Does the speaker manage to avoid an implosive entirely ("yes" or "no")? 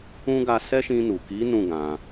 yes